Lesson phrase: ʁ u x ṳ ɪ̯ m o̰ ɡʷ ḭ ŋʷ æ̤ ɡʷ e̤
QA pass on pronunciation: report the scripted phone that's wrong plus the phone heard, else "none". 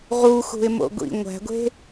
none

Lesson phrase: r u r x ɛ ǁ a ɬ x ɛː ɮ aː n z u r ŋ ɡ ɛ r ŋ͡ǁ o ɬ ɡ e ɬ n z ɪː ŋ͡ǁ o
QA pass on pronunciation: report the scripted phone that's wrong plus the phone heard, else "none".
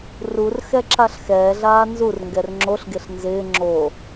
none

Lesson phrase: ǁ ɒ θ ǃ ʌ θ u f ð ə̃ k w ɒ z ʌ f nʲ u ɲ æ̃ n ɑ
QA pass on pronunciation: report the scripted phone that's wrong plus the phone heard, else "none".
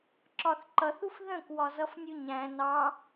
none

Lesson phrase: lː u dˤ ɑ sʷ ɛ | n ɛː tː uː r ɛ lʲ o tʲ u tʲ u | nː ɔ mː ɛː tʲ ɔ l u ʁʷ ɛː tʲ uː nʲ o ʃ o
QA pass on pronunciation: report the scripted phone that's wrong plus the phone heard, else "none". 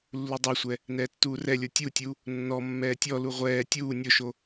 none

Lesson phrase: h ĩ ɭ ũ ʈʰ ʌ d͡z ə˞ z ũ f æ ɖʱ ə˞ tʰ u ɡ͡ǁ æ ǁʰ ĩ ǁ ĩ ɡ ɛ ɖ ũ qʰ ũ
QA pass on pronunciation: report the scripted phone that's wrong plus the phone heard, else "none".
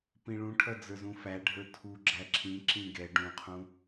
h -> p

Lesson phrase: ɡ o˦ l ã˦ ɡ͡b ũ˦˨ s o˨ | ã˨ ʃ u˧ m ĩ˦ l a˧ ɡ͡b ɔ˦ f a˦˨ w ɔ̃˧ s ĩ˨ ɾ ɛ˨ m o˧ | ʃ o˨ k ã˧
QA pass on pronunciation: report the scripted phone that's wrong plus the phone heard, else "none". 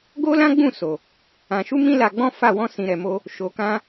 ɔ˦ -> ɔ̃˦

